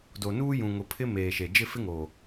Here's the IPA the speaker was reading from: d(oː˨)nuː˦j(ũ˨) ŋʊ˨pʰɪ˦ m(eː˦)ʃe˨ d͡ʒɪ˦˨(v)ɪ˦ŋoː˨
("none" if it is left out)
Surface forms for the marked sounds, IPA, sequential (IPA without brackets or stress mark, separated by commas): o˨, ũ˨, eː˨, f